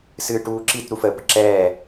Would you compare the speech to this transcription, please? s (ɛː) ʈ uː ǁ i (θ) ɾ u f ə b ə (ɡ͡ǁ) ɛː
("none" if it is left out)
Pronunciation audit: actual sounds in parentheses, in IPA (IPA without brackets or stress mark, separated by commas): ɨː, t, ǁ